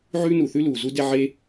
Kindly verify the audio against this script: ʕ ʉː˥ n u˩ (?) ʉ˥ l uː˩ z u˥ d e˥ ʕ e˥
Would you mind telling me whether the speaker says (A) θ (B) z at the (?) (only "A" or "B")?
A